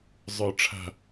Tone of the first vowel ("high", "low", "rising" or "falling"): low